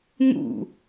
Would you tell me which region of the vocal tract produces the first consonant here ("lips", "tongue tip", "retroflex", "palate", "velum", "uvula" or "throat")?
velum